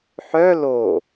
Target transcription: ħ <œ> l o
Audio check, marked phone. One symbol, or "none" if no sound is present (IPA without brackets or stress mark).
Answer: œ